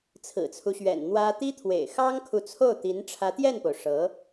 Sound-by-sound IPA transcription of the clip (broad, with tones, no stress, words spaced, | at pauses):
t͡sʰɹ̩˨˩t͡sʰu˦ɕɥɛ̰˨˩n n̪wä˥ t̪i˥t̪ʰwḛ˨˩ɪ̯ xɑ˥ŋkʰu˨t͡sʰo˥˩ʊ̯t̪i˧˥n ʈ͡ʂʰä˧˥t̪jɛ˥˩npo˩ʊ̯ ʂɤ˧˥